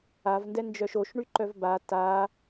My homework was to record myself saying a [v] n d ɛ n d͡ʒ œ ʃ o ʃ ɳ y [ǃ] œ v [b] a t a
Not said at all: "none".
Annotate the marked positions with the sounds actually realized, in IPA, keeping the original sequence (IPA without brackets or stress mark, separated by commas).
v, ǃ, b